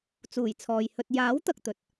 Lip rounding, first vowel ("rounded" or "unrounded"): rounded